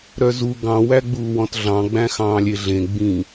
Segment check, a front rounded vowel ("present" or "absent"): present